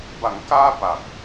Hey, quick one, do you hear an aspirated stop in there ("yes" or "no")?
no